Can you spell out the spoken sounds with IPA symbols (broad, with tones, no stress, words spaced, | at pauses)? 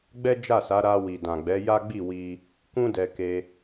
ɡ͡bɛ˦d͡ʒa˦˨sa˨˦ ɾa˧ wi˨dã˨ɡ͡bɛ˨˦ ja˦ɡ͡bi˦˨wi˧ | kũ˦dɛ˧ke˧